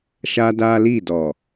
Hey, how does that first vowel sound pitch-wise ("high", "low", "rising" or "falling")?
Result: high